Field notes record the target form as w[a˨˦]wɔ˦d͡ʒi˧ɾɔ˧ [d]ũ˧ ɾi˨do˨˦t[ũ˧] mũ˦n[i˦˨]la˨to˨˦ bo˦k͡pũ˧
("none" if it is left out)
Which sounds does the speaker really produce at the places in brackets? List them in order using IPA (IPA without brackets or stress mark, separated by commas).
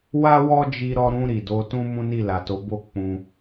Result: a˦, ɾ, ũ˦, i˦˨